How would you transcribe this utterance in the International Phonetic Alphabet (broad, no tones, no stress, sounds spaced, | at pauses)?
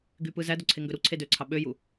ɡ y p ɯ z æ d o ǀʰ e ŋ ɡ ø ɾ u ǀʰ e d ø ǀʰ ɑ ɓ ø j u